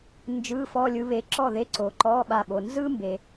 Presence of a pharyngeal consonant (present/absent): absent